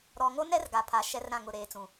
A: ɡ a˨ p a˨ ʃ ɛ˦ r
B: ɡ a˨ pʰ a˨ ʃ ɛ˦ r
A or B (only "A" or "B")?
B